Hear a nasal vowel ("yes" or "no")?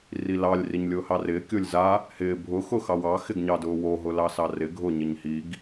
no